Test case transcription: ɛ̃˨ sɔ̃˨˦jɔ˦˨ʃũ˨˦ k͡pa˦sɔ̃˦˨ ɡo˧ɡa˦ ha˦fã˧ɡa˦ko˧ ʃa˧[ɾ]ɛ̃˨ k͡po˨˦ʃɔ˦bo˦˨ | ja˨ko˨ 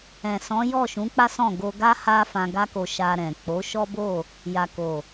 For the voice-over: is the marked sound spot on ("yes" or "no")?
yes